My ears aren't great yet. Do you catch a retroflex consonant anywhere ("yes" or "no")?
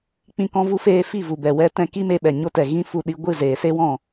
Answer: no